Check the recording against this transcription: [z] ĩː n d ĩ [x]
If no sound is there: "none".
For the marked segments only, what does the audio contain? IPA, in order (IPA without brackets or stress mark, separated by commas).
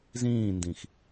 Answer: z, x